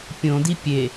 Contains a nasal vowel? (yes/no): yes